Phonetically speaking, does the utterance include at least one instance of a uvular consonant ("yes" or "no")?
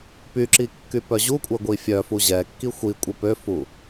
no